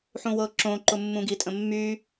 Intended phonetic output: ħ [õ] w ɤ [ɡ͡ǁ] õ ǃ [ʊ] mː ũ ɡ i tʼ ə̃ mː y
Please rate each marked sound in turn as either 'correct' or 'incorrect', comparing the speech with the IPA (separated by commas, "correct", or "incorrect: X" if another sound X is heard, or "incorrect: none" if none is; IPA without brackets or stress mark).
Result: incorrect: ũ, incorrect: ǁ, correct